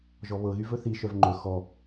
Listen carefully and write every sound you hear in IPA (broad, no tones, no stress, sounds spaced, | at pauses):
ʒ ɔ β ɤ ɣ y v ɵ θ i ʃ œ v ŋ͡ǃ ɵ x ɔ